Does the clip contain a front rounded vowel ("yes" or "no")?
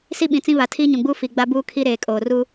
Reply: no